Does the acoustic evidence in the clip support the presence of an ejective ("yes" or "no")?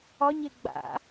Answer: no